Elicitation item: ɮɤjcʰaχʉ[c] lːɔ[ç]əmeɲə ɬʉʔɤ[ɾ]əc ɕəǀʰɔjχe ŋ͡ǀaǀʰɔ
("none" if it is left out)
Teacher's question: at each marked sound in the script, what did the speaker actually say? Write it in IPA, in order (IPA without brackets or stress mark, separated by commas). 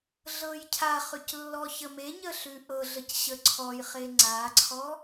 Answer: c, ç, ɮ